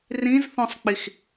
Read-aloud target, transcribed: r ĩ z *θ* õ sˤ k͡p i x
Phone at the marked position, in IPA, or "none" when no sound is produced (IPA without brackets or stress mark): θ